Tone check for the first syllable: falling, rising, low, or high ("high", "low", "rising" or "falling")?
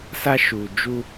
high